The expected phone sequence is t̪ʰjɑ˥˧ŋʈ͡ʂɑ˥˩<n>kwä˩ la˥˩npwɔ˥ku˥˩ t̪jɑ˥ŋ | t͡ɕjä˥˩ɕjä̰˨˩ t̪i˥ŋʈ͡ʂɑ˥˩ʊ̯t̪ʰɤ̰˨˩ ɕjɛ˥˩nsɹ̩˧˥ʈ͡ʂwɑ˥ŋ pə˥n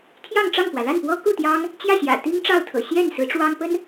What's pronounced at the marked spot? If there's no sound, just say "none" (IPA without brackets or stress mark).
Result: ŋ